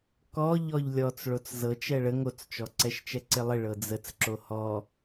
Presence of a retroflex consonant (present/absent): present